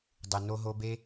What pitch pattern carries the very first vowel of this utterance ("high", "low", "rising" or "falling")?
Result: low